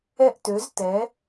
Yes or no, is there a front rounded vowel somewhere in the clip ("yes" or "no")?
yes